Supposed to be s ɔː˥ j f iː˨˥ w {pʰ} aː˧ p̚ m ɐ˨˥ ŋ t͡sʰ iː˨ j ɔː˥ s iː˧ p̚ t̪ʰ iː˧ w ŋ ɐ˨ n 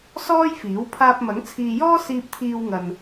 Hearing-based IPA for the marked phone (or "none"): pʰ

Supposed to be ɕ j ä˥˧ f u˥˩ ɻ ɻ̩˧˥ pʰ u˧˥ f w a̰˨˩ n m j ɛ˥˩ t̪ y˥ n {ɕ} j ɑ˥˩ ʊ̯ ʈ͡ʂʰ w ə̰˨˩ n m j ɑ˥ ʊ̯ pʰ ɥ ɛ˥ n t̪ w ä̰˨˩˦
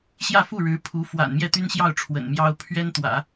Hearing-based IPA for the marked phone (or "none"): ɕ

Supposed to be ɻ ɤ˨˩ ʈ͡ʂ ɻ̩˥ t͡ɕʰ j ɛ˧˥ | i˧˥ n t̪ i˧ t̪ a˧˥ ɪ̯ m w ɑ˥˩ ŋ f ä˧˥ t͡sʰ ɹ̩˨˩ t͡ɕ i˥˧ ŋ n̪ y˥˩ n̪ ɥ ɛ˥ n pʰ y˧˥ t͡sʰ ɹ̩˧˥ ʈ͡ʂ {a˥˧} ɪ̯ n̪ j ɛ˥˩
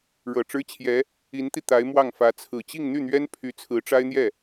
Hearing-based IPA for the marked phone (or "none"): a˥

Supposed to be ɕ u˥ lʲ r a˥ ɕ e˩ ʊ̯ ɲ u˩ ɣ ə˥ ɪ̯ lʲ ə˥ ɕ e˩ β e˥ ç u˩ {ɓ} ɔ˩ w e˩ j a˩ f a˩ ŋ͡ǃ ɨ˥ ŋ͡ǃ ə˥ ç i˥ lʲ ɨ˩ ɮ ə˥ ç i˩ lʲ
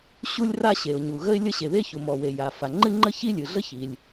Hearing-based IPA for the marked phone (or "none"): m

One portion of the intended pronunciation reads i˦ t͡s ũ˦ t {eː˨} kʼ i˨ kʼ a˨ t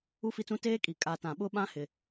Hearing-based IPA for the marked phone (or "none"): eː˦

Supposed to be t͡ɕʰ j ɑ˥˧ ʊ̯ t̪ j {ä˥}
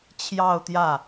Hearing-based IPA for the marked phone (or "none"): ä˥˩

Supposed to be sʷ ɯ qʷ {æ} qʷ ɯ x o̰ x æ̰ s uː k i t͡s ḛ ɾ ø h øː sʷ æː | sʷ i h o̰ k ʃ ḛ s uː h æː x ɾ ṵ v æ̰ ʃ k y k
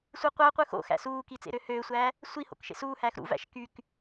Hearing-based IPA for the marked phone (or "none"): æ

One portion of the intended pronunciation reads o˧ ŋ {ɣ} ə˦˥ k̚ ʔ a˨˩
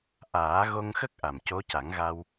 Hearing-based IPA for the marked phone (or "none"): x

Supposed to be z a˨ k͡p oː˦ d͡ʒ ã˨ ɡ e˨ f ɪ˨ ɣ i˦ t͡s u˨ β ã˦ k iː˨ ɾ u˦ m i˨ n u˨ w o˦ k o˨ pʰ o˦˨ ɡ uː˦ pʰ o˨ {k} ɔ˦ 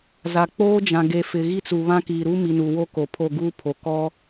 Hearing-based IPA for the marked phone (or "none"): k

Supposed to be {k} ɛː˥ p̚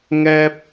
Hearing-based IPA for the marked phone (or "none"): ŋ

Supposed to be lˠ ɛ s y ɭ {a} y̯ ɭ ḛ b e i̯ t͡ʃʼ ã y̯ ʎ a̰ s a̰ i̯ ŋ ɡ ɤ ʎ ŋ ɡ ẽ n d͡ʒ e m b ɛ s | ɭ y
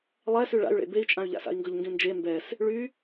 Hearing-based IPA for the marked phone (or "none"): a̰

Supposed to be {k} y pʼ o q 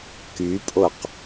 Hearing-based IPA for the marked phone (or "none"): k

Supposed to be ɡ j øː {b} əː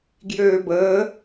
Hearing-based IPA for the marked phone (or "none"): b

